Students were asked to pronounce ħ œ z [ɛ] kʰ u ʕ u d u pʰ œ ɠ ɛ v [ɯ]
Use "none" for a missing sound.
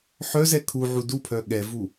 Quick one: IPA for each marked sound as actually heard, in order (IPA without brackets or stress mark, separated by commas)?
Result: ɛ, u